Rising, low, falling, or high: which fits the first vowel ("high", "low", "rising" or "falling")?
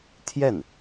falling